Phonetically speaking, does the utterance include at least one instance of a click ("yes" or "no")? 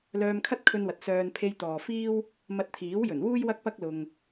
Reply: no